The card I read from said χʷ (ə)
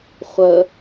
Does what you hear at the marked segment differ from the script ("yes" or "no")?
no